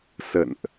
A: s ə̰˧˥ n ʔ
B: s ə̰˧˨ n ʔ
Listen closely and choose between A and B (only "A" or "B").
B